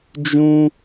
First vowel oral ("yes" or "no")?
no